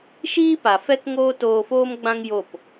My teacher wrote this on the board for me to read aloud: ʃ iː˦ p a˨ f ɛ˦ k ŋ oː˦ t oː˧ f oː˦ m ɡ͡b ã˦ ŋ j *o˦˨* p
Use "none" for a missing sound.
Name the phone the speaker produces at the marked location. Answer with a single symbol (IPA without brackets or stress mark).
o˦˨